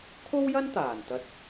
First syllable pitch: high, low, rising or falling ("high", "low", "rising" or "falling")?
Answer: high